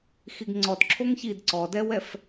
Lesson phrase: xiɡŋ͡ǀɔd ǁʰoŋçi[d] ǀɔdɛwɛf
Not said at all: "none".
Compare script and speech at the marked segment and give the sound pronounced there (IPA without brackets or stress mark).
d